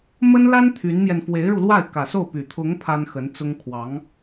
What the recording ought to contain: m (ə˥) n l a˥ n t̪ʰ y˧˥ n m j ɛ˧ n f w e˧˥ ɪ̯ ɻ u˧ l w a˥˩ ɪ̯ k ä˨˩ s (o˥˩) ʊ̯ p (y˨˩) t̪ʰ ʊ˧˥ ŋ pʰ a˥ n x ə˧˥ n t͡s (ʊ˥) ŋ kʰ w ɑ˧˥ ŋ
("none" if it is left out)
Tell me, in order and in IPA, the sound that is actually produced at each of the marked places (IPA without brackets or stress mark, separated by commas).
ə˥, o˥˩, y˨˩, ʊ˥